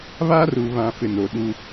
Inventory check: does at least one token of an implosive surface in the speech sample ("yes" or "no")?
yes